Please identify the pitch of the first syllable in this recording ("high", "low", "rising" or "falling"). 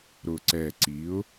low